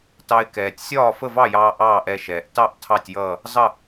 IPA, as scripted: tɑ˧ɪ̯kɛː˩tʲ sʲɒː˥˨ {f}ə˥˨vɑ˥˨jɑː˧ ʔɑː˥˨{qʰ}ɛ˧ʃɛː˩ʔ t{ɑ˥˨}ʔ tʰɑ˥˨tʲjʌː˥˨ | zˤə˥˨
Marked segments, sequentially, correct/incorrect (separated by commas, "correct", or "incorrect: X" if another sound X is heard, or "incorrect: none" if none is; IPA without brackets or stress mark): correct, incorrect: ʔ, correct